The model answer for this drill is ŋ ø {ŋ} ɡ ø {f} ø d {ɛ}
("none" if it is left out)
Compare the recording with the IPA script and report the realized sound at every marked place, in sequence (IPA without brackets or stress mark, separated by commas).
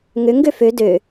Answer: ŋ, f, ø